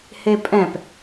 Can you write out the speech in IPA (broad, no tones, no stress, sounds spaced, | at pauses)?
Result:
h e pʼ ɛ̃ p